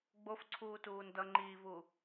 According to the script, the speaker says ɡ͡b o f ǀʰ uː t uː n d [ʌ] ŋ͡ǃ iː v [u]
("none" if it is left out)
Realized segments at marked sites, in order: ʌ, u

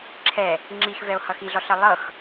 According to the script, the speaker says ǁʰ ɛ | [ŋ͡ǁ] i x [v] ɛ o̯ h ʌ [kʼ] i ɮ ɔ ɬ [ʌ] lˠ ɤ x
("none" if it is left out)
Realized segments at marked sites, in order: ŋ͡ǁ, v, x, ʌ

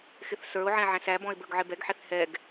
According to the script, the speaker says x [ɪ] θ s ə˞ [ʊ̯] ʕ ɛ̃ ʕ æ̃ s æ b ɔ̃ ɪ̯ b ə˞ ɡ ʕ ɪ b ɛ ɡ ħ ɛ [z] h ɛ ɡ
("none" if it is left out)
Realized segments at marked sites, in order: ɪ, ʊ̯, θ

